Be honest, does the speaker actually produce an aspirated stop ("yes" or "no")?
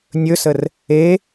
no